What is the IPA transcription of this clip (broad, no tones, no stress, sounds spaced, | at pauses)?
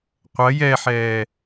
qʷ ɐ j ɛ ħ ɛː